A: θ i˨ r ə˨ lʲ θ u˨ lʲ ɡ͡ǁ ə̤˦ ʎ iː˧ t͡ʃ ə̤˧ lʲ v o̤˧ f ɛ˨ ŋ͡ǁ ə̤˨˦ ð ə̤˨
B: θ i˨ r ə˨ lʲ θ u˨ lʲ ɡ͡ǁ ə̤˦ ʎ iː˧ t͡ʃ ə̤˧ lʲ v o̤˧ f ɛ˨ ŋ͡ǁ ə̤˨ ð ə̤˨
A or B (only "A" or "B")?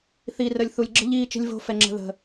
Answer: B